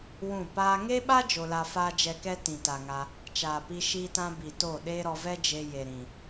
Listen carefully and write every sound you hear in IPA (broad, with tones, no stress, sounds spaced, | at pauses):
w ũ˦˨ p aː˦ ŋ e˦ ɓ a˦ d͡ʒ o˧ l a˧ f aː˦ d͡ʒ ɛ˧ k ɛ˦ t ĩ˨ t a˨ ŋ a˧ | t͡ʃ aː˨ p i˧ ʃ iː˦ t ã˦ b i˨ t o˦˨ ɗ eː˦ ɾ ɔ˧ v ɛ˦ d͡ʒ e˧ j e˨ ɾ ĩ˨